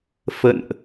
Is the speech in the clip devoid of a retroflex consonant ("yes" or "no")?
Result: yes